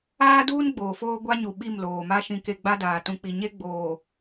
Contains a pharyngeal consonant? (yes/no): no